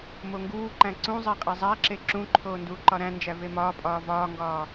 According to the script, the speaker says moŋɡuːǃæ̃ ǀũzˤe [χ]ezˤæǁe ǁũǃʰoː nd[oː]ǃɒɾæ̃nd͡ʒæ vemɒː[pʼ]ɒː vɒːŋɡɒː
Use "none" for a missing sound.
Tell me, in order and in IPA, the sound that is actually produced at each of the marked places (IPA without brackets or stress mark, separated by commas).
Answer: qʼ, uː, pʼ